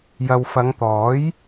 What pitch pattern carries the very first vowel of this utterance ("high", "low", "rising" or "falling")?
low